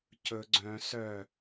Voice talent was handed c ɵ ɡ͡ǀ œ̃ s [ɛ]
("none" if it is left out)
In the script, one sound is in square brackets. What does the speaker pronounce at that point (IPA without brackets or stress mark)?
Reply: œ